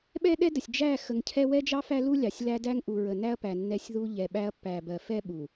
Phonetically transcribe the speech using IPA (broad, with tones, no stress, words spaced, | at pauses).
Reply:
ɓɛ˦ɗɛ˦də˨sʲ d͡ʒæ˦˨ xə˨ŋcʰɛ˦ wɛ˦d͡ʒɑ˦ fæ˦lu˦lʲɑ˨sʲ læ˦dæ˦ŋʔu˨ɹə˨ næ˦ɐ̯pæ˨ nːɛ˦sʲðu˦ ʎɛ˨ɓæ˦ɐ̯ pːæ˨bɜ˨fɛ˦ ɓu˨